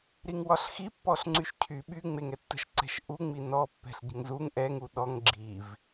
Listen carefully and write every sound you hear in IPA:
ɾiŋwɒɬxi pːɔɬŋ͡ǀyʃcʰy ɓy ŋ͡meŋɛtːə̤ʃǀɛ̤ʃ ʔuŋ͡mi nɔ pːɛ̤ɬɟə̤ŋzuŋ ʔɛŋu ɗɔŋ ɡ͡ǁiv

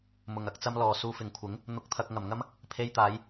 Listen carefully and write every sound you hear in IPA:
mʊ˨˩ŋɐ˧k̚t͡sɐ˧m lɔː˨˩ suː˨fɪ˨˩ŋkʷʰɪ˨˥ŋ | n̪ʊ˨k̚t̪ʰɐ˨k̚ ŋɐ˨˩mŋɐ˥m | pʰe˧jt̪aː˨˧j

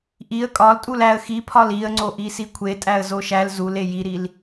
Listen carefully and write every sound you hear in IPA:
ʔiə̯ kʼɒltʼul æə̯ xipʰɒl iə̯ŋ͡ǀoʔi sikʷʰetʼæə̯ zoʃæl zule jiɾil

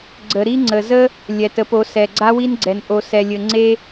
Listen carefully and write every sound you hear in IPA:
ɡ͡ǀə˨ ɾi˦ŋ͡ǀə˨zə˦ | lʲɛ˨tə˨˦po˨˦ sɛ˨ɡ͡ǀa˦wi˦nɡ͡ǀɛ˨n ʔo˨sɛ˨lʲɘ˨ ŋ͡ǀe˧

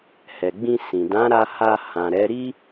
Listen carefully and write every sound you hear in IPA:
hɛ˨ɡ͡bĩ˧sĩ˨ dã˨˦ɾa˧ ha˧hã˨ɾɛ˨˦ ɾi˦

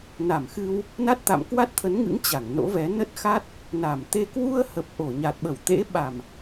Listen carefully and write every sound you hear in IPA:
na˧˩mxɨ˧w | na˦˥t̚t̪a̰˧˨m kwa˦˥t̚t̪ʰə˨˦nŋɨ̰˧˥ŋ t͡ɕa˧˩ŋ no̰˧˥vɛ˨˦ nə˦˥t̚xa˦˥t̚ | na˧˩mt̪e˧ kwu˧ə̯hə˨˩p̚ ʔo˧˩ɲa˨˩t̚ɓə˧˩wt̪ḛ˧˥ ɓa˨˩m

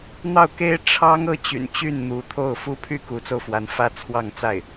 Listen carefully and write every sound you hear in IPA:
n̪ɑ˥˩ʊ̯ke˥ɪ̯ ʈ͡ʂʰɑ˥ŋ ɤ˥t͡ɕy̰˨˩nt͡ɕy˥˩n n̪u˧˥t̪ʰo˥˩ʊ̯ fu˥pʰy˥ ku˧˥t͡so˧ʊ̯fwa˧˥n fä˥t͡sʰwɑ˥˧ŋt͡sa˥˩ɪ̯

